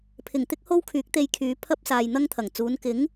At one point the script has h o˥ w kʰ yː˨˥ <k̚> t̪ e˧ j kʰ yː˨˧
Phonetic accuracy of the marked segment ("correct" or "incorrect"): correct